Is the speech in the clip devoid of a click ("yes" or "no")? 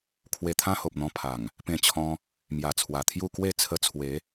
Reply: yes